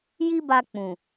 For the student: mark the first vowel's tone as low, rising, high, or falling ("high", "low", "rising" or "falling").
high